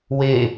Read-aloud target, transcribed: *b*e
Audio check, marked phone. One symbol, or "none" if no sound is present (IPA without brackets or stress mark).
w